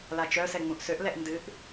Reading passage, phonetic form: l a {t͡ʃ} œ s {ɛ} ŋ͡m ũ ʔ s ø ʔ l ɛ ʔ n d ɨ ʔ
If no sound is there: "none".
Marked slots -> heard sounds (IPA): t͡ʃ, ɛ

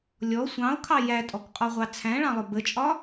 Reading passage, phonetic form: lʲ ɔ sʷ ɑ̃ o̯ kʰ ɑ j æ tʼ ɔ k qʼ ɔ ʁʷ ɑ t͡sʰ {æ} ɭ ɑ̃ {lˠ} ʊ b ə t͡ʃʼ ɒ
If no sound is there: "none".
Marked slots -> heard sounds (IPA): æ̃, lˠ

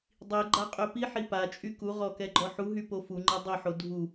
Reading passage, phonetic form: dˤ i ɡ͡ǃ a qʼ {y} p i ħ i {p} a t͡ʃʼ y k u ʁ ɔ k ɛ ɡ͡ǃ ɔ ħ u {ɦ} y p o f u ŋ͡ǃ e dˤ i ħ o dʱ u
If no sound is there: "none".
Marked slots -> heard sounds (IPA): ø, p, ɦ

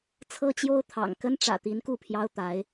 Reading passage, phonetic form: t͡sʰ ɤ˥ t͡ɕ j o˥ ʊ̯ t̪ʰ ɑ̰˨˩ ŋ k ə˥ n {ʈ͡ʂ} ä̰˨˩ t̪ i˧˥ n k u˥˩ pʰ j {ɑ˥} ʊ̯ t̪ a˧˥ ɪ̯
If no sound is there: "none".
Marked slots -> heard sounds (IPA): ʈ͡ʂ, ɑ˥

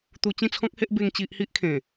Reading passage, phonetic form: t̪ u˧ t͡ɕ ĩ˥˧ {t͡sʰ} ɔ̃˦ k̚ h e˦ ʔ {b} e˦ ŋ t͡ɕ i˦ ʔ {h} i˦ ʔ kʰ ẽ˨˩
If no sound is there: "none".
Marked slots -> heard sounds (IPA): t͡sʰ, b, h

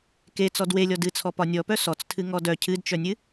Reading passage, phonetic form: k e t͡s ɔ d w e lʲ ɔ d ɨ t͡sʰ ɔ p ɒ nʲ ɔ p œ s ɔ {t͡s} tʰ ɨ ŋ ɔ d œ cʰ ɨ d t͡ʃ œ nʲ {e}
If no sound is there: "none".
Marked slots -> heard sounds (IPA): t͡s, ɨ

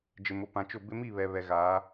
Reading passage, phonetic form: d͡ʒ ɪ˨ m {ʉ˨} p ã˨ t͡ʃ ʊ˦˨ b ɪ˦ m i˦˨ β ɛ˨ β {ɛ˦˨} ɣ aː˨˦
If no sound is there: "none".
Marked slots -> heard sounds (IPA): ʊ˨, ɛ˨

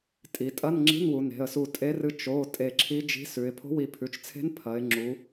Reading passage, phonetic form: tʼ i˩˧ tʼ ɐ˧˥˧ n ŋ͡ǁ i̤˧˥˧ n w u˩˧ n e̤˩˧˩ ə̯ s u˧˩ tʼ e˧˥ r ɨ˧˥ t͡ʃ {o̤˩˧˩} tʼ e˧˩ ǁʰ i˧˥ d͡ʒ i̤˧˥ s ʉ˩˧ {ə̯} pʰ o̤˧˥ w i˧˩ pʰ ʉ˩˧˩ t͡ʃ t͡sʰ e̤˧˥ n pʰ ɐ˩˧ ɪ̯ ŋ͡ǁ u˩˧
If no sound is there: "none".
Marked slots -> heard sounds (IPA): o˩˧˩, ɪ̯

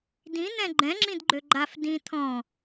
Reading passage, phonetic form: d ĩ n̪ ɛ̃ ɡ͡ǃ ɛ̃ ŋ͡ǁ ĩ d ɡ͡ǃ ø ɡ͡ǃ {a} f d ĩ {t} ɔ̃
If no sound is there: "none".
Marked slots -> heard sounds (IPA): a, t̪ʰ

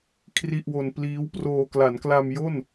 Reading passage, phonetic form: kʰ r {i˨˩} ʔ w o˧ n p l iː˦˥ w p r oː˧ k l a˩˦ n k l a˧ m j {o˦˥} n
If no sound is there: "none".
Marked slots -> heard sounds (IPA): i˥˩, o˥˩

